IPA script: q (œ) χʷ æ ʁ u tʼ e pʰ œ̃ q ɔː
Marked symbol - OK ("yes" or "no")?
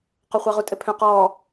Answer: yes